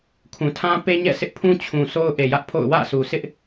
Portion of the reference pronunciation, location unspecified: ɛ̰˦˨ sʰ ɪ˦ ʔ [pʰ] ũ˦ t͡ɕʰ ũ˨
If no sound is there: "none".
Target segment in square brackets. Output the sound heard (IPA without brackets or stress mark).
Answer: pʰ